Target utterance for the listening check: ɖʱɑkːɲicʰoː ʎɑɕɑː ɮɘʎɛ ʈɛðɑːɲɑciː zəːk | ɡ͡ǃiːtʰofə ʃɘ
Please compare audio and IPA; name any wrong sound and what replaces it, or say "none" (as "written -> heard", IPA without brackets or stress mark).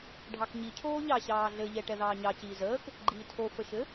kː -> k